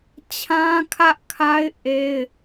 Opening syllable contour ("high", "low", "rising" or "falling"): high